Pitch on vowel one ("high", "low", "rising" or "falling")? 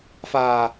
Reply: low